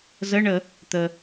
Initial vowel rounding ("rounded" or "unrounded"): unrounded